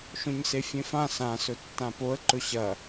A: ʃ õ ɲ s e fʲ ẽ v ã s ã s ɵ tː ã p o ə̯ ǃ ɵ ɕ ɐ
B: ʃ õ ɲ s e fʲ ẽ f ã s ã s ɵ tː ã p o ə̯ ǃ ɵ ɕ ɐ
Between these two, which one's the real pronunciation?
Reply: B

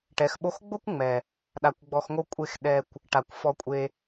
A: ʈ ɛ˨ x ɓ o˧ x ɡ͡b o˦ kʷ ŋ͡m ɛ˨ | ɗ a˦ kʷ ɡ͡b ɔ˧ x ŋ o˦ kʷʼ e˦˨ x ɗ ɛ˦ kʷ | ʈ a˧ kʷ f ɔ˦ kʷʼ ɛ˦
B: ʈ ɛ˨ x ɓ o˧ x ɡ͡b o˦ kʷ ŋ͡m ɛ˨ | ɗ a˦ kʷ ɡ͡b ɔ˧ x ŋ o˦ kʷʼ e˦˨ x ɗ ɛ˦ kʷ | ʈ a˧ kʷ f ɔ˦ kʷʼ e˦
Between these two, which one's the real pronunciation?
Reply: B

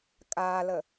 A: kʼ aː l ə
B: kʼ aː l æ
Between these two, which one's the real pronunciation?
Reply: A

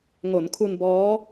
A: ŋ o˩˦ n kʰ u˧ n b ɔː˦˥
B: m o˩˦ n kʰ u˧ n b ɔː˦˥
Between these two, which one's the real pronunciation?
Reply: A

